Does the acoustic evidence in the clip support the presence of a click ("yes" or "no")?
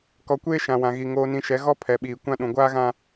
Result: no